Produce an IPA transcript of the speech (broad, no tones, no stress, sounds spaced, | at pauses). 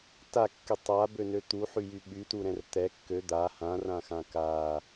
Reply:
t a kː y tˤ a b ø n ø t̪ u ħ y j y ɓ y t u ɾ ɛ̃ r t̪ ɛ kː ø d̪ a h ã r ã x ã k a